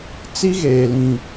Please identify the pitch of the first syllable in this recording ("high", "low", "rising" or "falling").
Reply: high